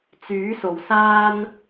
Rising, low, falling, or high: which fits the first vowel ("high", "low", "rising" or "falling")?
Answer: rising